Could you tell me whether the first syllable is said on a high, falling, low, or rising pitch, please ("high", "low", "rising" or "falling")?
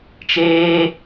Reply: high